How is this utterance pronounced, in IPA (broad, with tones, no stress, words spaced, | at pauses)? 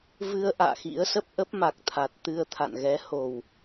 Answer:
vɨ˧ə̯ ʔa̰ː˧˨xḭ˧˥ə̯sə˦˥p̚ ʔə˦˥p̚ma˨˩k̚t̪ʰa˨˩t̚t̪ɨ˧ə̯ t̪ʰa̰˧˨nɣɛ˨˦ ho˨˩w